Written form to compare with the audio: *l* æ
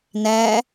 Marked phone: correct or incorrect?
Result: incorrect